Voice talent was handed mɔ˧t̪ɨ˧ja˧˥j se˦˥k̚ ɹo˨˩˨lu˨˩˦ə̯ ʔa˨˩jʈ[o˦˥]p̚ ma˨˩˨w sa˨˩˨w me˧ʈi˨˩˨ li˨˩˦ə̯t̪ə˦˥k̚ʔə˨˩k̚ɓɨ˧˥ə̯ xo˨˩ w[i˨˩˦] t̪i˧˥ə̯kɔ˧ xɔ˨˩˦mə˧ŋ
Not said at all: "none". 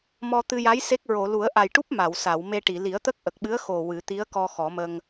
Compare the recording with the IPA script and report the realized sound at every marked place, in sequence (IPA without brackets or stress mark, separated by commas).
u˦˥, ɨ˨˩˦